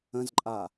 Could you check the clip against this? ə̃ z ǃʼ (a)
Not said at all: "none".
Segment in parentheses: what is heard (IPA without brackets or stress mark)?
a